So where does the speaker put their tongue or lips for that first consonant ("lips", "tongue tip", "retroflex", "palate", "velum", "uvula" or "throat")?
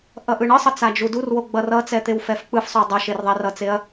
throat